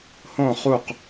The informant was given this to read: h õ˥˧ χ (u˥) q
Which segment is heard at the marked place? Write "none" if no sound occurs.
u˥˧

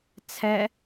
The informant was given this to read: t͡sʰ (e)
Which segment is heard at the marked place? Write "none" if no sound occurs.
ɛ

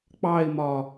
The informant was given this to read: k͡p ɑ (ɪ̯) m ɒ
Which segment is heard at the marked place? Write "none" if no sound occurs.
ɪ̯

